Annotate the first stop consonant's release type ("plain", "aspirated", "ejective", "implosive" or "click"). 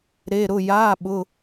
implosive